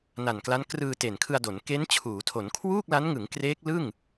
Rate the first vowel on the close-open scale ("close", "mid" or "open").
open